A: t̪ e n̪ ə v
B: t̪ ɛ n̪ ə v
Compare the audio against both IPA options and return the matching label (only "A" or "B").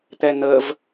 B